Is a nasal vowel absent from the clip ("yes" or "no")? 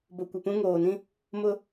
no